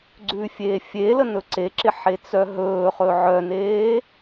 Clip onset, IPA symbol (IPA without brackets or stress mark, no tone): ɡ͡ǀ